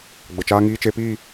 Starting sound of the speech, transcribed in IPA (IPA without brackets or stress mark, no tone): ɡ͡b